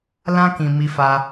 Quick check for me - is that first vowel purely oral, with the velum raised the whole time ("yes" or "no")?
no